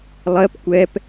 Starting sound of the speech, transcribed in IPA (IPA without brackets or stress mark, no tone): lˠ